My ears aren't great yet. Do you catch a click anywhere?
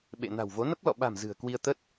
no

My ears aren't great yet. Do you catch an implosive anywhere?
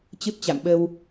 yes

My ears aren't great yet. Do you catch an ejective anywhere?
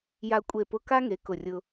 yes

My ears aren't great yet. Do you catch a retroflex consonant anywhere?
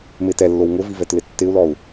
no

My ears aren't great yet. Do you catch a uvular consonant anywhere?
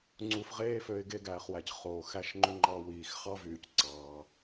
yes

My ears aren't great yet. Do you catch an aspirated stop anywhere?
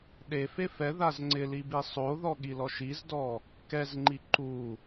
no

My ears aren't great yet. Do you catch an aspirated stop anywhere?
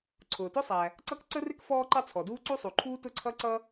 yes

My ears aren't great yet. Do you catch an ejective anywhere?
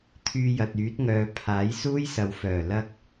no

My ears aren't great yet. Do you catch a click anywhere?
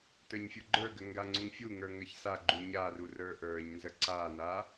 yes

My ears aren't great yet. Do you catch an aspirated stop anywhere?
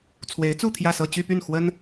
yes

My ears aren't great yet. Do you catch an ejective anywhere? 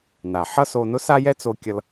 no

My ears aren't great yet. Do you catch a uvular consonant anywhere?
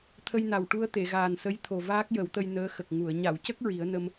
no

